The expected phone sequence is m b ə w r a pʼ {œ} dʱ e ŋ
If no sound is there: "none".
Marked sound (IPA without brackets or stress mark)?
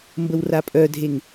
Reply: œ